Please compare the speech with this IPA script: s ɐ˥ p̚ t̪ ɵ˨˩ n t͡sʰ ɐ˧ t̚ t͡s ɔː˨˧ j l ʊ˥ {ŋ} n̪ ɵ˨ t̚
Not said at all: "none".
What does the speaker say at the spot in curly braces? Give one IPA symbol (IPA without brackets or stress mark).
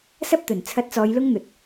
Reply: ŋ